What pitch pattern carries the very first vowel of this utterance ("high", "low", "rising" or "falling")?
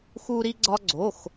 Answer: high